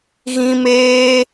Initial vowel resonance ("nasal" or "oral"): nasal